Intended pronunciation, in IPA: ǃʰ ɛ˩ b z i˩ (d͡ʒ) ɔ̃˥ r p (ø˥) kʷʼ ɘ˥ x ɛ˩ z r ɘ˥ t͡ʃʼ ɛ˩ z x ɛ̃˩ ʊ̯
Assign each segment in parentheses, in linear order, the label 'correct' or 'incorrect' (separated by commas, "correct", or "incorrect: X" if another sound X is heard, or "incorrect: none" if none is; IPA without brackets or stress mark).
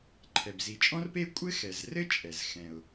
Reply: incorrect: t͡ʃʼ, incorrect: e˥